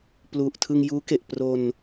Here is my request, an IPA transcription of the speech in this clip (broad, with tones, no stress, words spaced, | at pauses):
plu˨˩ʔtʰɯ˧ŋjuː˦˥ke˨˩ʔ pro˧n